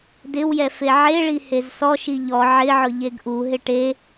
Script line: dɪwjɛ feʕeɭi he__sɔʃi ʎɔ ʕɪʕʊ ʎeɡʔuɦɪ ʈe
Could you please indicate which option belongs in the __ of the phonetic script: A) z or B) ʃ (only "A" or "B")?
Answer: A